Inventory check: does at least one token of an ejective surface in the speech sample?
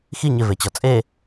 yes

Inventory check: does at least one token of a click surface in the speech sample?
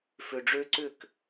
yes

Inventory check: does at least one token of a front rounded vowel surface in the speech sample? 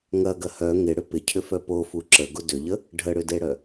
yes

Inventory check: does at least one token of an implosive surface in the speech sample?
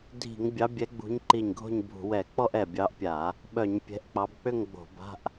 yes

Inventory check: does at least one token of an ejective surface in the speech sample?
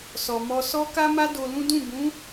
no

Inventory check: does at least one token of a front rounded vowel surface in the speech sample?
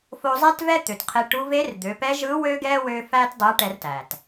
yes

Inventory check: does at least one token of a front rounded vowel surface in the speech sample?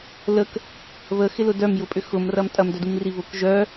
yes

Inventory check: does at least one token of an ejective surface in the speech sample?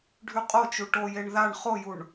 yes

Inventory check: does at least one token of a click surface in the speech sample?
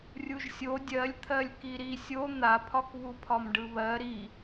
no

